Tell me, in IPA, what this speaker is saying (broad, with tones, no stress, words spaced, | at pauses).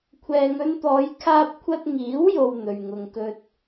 kʷʰɛː˨ŋɵ˧nt̪ɔː˨˧j kʰaː˧p̚kʷʰɐ˧t̚ŋiː˨˥wjo˨w n̪ɵ˨ɥŋʊ˧ŋkɵ˥t̚